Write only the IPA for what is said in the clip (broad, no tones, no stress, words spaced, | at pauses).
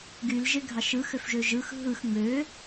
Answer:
ɡylʒeɡʱɑʃ ɯxøfʒø ʒɯx ɦɯx ŋ͡mø